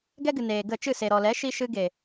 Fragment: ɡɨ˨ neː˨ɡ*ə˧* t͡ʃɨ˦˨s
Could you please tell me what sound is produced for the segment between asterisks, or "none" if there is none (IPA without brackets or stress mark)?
ə˦˨